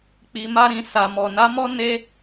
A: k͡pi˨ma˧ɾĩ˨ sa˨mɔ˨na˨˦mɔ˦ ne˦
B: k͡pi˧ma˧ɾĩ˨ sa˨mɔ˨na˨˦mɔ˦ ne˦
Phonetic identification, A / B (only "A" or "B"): A